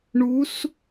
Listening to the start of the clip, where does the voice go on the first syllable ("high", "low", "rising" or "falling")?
rising